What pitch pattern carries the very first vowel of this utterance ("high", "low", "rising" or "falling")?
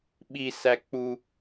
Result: high